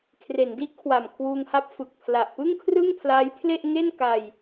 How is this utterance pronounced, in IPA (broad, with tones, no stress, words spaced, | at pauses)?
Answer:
kʰre˩˦ndi˦˥ʔkʰwa˨˩m kʰwuː˧ŋha˦˥p̚ fɯ˨˩k̚ pʰla˨˩ʔpɯ˥˩ŋkʰrɯ˥˩ŋ pʰlaː˦˥jpʰle˥˩ʔ ŋe˥˩n ka˧j